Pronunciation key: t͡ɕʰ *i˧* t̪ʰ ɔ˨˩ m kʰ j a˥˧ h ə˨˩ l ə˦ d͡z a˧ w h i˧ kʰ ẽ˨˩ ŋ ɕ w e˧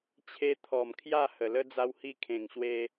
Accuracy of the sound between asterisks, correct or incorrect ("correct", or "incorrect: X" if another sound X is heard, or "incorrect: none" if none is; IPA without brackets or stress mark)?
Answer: incorrect: e˧